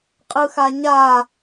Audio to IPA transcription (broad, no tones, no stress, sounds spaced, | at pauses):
qʼ ɯ x a ɲ a